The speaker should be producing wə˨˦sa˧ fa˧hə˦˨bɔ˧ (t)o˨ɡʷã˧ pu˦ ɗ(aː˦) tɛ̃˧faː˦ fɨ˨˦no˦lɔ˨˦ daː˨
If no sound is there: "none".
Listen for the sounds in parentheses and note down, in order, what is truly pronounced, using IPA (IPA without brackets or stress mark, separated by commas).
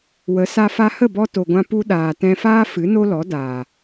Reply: t, aː˨